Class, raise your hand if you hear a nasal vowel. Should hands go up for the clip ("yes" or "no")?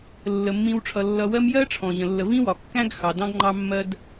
yes